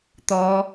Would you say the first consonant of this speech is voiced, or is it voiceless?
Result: voiceless